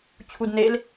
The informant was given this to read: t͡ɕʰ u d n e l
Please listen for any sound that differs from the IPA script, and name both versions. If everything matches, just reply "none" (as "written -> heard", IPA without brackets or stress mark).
none